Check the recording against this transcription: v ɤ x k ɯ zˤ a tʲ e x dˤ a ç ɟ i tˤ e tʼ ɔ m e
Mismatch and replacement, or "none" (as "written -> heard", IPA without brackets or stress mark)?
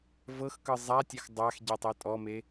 ç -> x